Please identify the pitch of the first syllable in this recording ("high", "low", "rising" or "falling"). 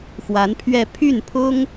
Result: rising